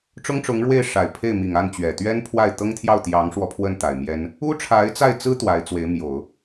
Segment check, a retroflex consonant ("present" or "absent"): present